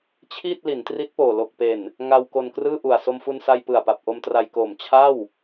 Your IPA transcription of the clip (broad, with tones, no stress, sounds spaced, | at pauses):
t͡ɕʰ iː˥˩ t̚ l i˩˦ n t r i˦˥ t̚ p oː˨˩ l o˨˩ k̚ p e˨˩ n | ŋ a˧ w k o˧ n k r ɯː˥˩ ʔ u˨˩ a̯ s o˧ m f u˧ n s a˧ j p ɯ˨˩ a̯ p a˨˩ p̚ ʔ o˧ m t r a˧ j k oː˨˩ m t͡ɕʰ a˥˩ w